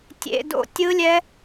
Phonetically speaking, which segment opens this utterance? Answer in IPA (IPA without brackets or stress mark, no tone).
tʲ